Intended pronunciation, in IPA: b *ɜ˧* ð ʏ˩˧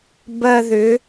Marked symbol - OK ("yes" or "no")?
yes